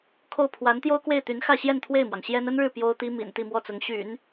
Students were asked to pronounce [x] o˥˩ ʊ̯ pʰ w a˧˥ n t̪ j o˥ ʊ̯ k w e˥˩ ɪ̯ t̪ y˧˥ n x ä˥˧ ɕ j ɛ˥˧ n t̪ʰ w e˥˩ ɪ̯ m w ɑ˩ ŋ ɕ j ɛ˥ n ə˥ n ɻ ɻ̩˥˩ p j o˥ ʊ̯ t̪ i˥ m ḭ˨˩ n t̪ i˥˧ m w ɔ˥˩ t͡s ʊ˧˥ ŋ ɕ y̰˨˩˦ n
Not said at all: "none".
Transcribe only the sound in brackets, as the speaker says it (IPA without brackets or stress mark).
kʰ